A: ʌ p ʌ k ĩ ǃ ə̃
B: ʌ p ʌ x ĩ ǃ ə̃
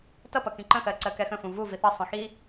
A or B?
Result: A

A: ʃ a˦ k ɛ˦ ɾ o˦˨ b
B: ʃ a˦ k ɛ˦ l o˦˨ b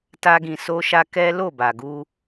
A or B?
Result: B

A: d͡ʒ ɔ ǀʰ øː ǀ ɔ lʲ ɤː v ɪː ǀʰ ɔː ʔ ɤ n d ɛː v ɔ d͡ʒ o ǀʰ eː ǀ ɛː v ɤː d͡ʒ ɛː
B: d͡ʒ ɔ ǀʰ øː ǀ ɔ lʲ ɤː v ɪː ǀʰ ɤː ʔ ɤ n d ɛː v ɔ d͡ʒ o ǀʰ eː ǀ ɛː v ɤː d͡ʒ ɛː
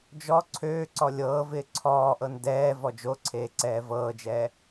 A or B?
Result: A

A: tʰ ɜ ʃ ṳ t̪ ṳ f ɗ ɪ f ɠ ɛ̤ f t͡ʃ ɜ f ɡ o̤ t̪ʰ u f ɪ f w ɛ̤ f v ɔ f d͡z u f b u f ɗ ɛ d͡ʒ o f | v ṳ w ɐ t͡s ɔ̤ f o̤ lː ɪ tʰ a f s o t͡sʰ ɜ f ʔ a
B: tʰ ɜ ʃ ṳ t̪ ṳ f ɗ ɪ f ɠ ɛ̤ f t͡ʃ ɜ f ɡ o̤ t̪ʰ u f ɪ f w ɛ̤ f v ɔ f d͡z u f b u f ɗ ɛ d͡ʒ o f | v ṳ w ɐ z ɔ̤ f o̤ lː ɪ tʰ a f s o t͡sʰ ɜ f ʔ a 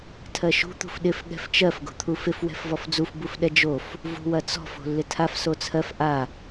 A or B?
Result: A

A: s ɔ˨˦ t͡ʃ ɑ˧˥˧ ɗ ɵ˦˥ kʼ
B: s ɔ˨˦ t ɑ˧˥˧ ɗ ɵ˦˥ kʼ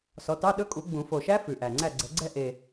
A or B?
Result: B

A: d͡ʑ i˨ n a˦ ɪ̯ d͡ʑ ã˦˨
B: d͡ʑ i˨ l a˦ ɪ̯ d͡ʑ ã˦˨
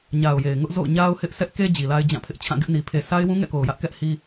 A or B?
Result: B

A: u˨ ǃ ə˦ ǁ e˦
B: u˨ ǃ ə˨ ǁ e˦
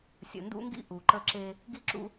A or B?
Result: A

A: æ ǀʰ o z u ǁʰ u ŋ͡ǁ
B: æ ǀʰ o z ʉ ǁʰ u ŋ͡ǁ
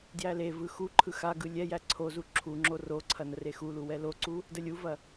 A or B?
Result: A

